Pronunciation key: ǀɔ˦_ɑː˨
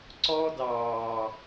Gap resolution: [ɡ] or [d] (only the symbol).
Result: d